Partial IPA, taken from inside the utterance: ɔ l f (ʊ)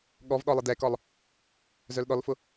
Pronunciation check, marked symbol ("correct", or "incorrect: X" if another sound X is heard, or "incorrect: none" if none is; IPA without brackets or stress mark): correct